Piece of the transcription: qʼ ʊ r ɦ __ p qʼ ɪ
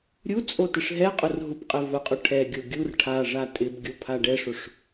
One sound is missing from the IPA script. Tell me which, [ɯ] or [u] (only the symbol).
u